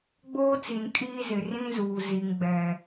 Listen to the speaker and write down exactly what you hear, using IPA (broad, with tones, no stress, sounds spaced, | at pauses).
ɡ͡b oː˦ t͡s i˨ n kʼ iː˦ z ɪ˨ r ĩ˦ z uː˨ z i˨ ŋ ɡ͡b ɛ˨